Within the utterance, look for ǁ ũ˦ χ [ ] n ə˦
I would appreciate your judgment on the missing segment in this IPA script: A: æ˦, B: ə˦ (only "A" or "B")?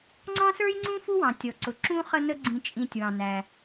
B